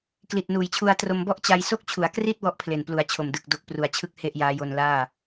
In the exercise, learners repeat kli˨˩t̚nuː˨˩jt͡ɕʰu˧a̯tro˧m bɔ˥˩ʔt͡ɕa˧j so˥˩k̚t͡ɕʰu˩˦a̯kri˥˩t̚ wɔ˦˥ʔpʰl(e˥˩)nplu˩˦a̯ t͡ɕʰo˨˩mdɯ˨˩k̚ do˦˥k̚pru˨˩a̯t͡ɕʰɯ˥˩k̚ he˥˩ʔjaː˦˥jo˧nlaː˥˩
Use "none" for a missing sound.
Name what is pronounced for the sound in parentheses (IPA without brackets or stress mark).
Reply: e˨˩